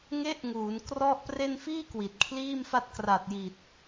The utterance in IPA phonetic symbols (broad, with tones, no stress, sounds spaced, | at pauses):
ŋ e˦˥ ʔ ŋ uː˩˦ n k r ɔ˥˩ ʔ p r e˧ n f iː˥˩ k w i˨˩ t̚ kʰ l iː˥˩ m f a˥˩ t̚ k r a˨˩ t̚ j i˨˩ t̚